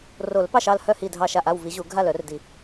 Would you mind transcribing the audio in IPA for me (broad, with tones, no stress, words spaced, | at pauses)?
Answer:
ro˨˩˦lpɑ˥˩ʃɑ˥˩l hœ˥˩ hi˥˩dʱɑ˥˩ʃa˥˩ʔ a˥˩wvi˨˩˦ʑu˨˩˦ ɡʱa˥˩lœ˨˩˦rdi˨˩˦